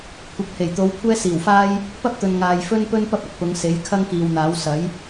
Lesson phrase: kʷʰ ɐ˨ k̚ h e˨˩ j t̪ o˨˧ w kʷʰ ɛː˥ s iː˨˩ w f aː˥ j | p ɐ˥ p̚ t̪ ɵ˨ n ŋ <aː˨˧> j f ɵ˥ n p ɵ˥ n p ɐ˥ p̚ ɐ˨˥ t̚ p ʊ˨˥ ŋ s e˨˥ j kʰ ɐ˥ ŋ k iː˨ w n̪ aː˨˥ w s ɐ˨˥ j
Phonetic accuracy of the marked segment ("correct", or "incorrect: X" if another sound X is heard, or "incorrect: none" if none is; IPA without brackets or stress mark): incorrect: aː˨